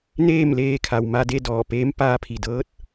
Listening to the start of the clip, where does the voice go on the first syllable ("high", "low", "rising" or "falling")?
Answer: falling